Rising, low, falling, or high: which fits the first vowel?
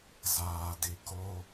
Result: low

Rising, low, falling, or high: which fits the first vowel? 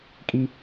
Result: high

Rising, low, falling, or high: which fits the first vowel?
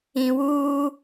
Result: low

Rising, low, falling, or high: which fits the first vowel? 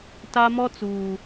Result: high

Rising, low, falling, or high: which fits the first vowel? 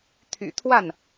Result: low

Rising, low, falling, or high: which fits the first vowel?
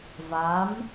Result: rising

